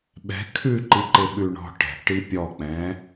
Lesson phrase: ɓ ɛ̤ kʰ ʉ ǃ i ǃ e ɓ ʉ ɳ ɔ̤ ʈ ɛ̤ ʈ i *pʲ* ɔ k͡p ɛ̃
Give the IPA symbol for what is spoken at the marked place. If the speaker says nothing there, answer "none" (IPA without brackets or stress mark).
pʲ